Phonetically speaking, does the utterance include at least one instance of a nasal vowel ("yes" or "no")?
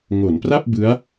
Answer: no